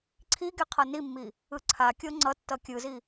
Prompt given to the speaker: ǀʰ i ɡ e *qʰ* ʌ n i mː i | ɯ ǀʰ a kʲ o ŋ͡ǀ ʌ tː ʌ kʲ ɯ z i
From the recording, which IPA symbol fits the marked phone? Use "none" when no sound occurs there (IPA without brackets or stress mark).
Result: qʰ